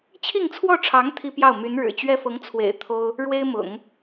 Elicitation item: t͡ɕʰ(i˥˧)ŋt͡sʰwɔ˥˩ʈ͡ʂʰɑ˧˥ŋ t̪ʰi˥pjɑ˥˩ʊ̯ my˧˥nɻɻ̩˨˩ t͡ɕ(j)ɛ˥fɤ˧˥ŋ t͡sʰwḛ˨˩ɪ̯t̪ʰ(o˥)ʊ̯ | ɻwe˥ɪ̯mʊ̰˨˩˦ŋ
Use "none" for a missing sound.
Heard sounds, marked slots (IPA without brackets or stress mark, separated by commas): i˥˧, ɥ, o˥